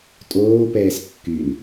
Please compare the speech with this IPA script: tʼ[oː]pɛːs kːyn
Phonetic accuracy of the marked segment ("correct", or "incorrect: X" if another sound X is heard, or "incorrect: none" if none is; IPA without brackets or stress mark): correct